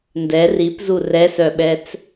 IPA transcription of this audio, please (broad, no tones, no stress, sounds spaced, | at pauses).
n d ɛ r i p z u r ɛ s œ ɓ ɛ t͡s